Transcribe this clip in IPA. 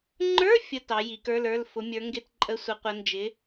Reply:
ŋ͡ǃə˞˧˥˧ fʲə˧˥˧ tɑ˨˦ji˨˦kə˞˧˥˧lə˞˧˥˧l fʊ˨˦mʲə˞˨˦ŋɡɪ˧˥˧t ǃʼə˧˥˧sʷə˨˦qʷə˨˦ nd͡ʒɪ˨˦

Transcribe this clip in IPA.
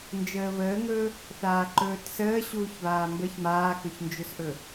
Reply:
nd͡ʒəːβəːŋɵː | θaːǃɵːtsəː ɕuːçβaːmbəç maːkɵçnd͡ʒɵsʔɵ

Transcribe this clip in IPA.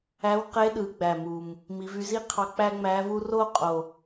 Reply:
æ˧˥wqe˧˥ ɗɯ˩˧ɡ͡bæ˨˩mu˨˩m | mi˩˧vy˧zi˥qʰɑ˧ k͡pæ˥ŋ͡mæ˧˥vu˥ ro˥qʼo˨˩

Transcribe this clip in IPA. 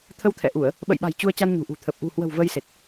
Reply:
t̪ʰə˧wt̪ʰɛ̰˧˨ʔu˧˩˨ə̯ | ɓə̰˧˨jɓa̤˨˩j t͡ɕu˧ə̯ t͡ɕa˧nɲṳ˨˩ʔṳ˨˩ t̪ʰə˨˩p̚ ʔṳ˨˩hwə̤˨˩w və˧jse˨˩t̚

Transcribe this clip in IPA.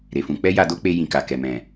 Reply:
ɾe˨fũ˨˦ k͡pɛ˦ja˧do˦k͡pe˧ jĩ˨ka˨ kɛ˨mɛ̃˨

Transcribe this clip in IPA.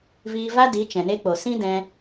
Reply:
viː˧va˦di˨˦ t͡ʃɛ̃˨ne˧k͡po˨ sĩ˦dɛ̃˧

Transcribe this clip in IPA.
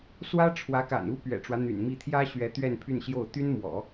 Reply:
swä˥ʈ͡ʂʰwä˧˥ka̰˨˩nu˥ pɥɛ̰˨˩ʈ͡ʂwä˦ n̪y̰˨˩nmi˥˩ t̪ʰjä˥ɕɥɛ˧˥ t̪ɥɛ˥˧npʰy˥˧nɕjo˥˩ʊ̯ t̪y˥nmwɔ̰˨˩˦

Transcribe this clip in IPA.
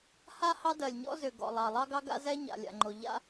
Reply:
ha˥ hɑ˥dɜ˩lʲɲɔ̰˥zʏ˩ ɡɔ̰˩lˠɑ˩ lˠɑ˥ɡɑ˥ɡa̰˥zɛ˥ ɲa̰˩lʲa̰˩ŋ͡ǃo˩ ʎa̰˥

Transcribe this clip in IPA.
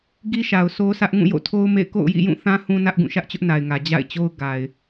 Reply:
ɡi˦ʃa˨ʊ̯sʰo˦sʰä˦ʔ ŋũ˦˨jo̰˦˨tʰo˦ʊ̯mḛ˦˨ɪ̯ ko̰˦˨ʊ̯jḭ˦˨jũ˦˨θã˦ hũ˦nä˦ʔɡũ˦˨ ʃä˦ʔt͡ɕʊ˦ʔna˨ɪ̯ŋä˨ d͡ʑa̰˦˨ɪ̯t͡ɕo˦ʊ̯ ɡa˨ɪ̯

